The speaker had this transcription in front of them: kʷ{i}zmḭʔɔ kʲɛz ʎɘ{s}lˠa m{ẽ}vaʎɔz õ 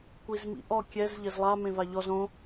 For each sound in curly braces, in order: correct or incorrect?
correct, incorrect, correct

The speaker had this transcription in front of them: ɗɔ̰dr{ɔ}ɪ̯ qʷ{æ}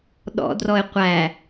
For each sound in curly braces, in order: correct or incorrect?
correct, correct

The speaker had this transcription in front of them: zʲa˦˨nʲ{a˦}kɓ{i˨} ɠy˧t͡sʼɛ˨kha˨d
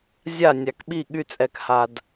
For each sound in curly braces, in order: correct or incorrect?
incorrect, incorrect

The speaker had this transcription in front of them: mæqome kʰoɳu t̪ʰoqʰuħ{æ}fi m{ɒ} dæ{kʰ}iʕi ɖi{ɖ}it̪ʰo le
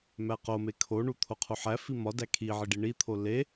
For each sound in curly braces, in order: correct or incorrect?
correct, correct, correct, incorrect

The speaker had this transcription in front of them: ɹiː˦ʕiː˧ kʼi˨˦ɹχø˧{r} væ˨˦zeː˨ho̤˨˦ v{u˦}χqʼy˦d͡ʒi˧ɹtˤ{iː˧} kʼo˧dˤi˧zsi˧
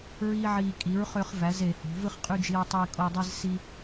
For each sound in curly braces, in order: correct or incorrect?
incorrect, incorrect, correct

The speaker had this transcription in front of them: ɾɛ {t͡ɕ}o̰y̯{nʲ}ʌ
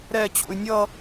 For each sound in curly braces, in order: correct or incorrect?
correct, correct

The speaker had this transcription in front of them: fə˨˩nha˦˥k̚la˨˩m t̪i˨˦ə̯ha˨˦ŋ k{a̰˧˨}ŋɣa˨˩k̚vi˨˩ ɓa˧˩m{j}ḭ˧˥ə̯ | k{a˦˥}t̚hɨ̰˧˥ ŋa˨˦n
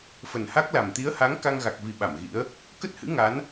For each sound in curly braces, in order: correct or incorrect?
incorrect, incorrect, incorrect

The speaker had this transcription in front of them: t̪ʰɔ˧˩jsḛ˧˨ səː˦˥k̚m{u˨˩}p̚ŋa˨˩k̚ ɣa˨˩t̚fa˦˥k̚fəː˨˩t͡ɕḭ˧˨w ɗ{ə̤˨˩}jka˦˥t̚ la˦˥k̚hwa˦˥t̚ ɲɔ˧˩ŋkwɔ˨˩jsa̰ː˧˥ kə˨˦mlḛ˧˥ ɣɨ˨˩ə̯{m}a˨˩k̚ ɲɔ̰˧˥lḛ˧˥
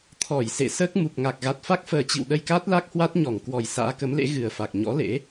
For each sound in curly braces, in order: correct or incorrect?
correct, incorrect, incorrect

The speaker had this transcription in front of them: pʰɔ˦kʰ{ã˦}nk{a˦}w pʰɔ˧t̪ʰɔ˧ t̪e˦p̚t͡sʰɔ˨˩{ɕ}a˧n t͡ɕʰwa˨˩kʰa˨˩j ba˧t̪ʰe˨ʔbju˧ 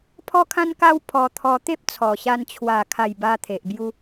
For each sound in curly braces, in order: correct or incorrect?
correct, correct, correct

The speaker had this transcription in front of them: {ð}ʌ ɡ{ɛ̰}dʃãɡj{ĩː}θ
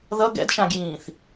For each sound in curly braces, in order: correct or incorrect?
correct, correct, correct

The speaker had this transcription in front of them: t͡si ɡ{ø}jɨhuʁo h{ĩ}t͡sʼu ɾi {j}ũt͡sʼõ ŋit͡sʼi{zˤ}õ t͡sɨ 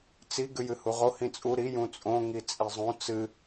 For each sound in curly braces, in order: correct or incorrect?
incorrect, correct, correct, correct

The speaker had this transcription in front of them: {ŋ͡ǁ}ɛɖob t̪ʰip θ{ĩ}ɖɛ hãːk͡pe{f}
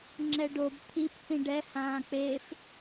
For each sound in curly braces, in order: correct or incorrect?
correct, correct, correct

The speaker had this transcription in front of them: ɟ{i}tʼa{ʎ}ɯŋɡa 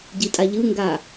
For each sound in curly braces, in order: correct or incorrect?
correct, correct

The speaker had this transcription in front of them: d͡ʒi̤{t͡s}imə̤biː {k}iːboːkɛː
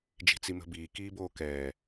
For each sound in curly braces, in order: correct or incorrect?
correct, correct

